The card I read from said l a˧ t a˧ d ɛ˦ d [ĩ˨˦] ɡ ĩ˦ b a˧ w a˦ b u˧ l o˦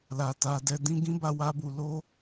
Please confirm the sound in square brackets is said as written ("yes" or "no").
no